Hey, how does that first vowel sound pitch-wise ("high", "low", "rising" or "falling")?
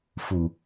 low